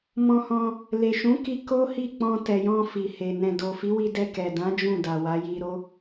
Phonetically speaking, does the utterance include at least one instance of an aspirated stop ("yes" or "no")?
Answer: no